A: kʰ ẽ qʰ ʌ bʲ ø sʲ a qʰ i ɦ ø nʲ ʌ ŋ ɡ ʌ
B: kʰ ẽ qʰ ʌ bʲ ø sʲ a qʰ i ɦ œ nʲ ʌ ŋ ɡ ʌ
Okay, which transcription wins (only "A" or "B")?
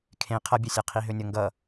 A